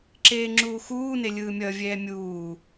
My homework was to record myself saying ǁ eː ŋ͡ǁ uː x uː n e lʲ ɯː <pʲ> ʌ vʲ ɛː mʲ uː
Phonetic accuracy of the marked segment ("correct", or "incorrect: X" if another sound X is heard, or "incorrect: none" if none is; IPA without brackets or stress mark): incorrect: mʲ